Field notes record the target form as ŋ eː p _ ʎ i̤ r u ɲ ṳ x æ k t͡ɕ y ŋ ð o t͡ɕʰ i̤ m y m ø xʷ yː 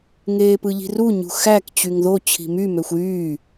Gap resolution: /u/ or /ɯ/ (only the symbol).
ɯ